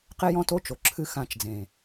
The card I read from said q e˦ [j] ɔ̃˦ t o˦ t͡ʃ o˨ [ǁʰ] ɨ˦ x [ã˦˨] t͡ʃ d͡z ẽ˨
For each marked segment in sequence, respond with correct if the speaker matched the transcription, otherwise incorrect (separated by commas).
correct, correct, correct